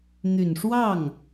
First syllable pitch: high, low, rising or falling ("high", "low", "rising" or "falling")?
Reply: low